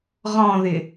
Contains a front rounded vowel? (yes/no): no